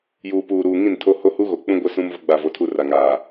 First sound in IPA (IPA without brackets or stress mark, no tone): j